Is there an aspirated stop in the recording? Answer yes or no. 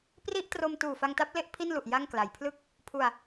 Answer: yes